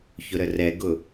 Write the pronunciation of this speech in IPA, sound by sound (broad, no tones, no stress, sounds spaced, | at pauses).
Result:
ç ʊ ɾ ə r ɛ ɡ ʊ